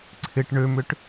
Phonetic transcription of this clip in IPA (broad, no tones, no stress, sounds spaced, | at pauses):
ǀʰ ɪ ʈ ɳ ø m ʏ ʈ